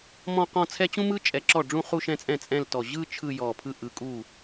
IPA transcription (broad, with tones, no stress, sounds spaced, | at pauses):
m ɔ̃˥˧ q ɔ̃˥˧ t͡sʰ ɛ˥ t͡ɕ ũ˥ m ɯ˥ t͡ʃʼ ɛ˧˩ ǁ ɔ˥˩ ɖ͡ʐ ũ˥˧ χ u˥˧ ʃ ɛ̃˥˧ t͡sʼ ɛ̃˥˩ t͡sʼ ɛ̃˥˧ l t ɔ˧˩ ʑ ɯ˥˧ t͡ʃʰ ɯ˥˧ j ɔ˧˩ pʰ ɯ˥˧ ʔ ɯ˧˩ kʼ u˥˩